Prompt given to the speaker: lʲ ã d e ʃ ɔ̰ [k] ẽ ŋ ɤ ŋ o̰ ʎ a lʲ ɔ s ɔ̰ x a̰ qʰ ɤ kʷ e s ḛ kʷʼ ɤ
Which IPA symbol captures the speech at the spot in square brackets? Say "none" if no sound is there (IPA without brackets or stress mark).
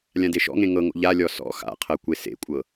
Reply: ŋ